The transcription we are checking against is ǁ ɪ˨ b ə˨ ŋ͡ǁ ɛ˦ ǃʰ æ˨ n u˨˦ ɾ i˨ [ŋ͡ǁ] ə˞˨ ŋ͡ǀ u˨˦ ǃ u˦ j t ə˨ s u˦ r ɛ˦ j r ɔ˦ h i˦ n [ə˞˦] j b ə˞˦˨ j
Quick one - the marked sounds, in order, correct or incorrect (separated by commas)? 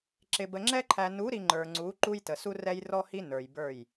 incorrect, incorrect